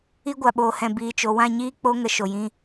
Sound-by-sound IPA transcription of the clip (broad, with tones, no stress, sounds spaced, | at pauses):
i˦ ɡʷ a˨ ɓ oː˨ h ɛ̃˨ b iː˨ t͡ʃ o˨ w ã˦˨ ɲ iː˦ k͡p o˦ ŋ ə˧ ʃ o˨ j ĩ˧